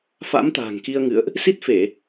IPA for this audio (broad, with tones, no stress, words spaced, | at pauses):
fa̰˧˥mt̪a̤ː˨˩ŋ ki˧ə̯ŋɨ̰˧˨ə̯ʔ | si˦˥t̚fe˧˩˨